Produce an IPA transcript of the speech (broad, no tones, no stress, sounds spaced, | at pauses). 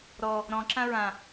ɾ ɔ | ɾ ɔ̃ ǁ ã ɹ ã